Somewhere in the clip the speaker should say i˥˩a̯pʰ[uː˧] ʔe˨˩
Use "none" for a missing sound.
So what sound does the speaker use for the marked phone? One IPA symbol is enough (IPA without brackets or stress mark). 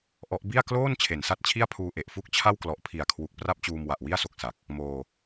uː˧